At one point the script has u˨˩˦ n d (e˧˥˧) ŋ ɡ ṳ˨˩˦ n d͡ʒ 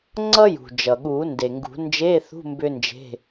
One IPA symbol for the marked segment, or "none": e˩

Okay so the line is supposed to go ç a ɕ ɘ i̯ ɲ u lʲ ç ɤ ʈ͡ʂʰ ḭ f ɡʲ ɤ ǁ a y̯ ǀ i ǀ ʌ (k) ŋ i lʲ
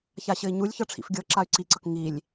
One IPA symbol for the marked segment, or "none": k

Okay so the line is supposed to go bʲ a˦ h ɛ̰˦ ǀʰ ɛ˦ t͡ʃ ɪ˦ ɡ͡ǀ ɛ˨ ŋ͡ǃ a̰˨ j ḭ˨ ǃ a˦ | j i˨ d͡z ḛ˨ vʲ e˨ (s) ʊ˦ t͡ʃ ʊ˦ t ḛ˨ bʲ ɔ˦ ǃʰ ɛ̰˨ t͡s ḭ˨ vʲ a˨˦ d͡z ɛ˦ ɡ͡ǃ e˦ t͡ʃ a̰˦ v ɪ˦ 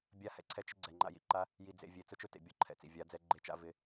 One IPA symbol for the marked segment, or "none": t͡s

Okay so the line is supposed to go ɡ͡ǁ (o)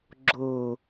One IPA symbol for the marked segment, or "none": o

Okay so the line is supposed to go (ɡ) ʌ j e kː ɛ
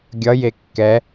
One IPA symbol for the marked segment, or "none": ɡʲ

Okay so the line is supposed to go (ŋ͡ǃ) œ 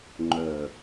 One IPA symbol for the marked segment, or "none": ŋ͡ǃ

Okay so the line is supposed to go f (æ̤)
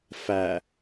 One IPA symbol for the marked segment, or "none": æ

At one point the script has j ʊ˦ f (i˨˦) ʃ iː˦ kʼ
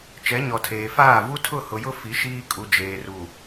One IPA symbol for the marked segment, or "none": i˨˦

